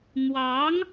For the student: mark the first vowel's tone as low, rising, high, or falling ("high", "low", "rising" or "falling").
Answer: rising